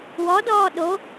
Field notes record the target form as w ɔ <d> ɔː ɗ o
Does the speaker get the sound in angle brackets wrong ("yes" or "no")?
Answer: no